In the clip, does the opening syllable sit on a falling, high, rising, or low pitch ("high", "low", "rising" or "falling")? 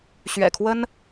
low